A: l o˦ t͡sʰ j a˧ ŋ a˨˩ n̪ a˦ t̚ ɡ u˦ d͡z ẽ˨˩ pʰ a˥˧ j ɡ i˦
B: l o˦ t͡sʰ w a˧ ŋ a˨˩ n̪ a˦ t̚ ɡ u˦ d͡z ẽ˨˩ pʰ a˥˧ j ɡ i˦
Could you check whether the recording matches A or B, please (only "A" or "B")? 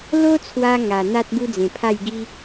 B